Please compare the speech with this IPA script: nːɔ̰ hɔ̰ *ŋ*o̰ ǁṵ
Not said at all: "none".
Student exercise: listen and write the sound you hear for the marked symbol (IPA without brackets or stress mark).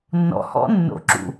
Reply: nː